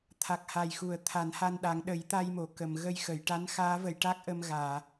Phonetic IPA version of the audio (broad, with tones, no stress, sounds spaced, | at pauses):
t̪ʰ a˨˩ k̚ h a˨˩ j x u˨˩˨ ə̯ t̪ʰ a˨˩˦ n h a˧ n ɗ a˨˩˦ ŋ ɗ ə˨˩˦ j t̪ a˧ j m o˨˩˨ k ə˨˩˨ m ɣ ə˧ j x ə˨˩˨ j ʈ a˧˥ n x aː˧˥ v ə˨˩˨ j ʈ a˦˥ k̚ ʔ ə˧ m ɣ aː˨˩˨